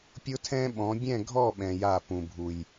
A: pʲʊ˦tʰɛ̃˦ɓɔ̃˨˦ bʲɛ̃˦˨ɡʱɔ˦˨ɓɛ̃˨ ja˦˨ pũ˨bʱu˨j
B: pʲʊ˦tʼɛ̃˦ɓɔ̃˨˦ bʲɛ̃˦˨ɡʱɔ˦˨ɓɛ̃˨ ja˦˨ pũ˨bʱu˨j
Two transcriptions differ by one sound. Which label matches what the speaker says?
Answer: A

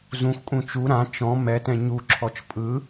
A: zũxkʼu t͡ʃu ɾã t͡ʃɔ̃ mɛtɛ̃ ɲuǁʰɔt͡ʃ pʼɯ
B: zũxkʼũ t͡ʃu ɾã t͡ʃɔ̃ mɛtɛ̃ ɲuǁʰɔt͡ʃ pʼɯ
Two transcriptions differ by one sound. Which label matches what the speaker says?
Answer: B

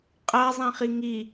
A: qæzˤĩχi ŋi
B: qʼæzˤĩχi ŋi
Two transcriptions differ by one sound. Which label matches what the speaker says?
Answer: B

